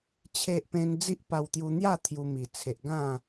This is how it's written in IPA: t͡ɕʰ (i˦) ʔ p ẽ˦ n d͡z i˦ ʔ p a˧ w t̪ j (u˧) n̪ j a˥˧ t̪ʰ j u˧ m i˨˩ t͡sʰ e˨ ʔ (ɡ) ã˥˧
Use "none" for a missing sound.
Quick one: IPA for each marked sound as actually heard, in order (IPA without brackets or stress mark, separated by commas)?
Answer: e˦, u˧, ɡ